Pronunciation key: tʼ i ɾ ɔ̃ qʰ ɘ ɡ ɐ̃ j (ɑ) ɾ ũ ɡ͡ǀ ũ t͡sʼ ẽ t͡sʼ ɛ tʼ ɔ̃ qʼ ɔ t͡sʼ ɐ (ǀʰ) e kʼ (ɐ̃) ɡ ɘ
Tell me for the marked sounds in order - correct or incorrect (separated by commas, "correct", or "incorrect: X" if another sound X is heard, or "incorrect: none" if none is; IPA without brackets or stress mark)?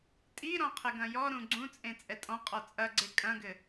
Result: incorrect: ɔ, incorrect: ɡ͡ǀ, correct